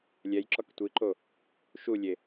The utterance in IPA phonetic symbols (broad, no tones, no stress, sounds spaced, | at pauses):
lʲ ɛ j ǁ ɔ k tʷ i ǃ o | ʃ u lʲ e